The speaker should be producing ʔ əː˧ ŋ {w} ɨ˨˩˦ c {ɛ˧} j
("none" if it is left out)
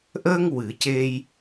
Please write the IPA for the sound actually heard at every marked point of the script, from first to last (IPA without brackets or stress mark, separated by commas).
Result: w, e˧